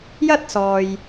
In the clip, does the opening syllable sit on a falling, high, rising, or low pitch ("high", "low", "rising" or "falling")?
high